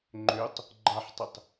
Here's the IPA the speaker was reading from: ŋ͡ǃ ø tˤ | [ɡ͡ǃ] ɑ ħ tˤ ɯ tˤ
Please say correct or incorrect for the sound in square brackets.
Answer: correct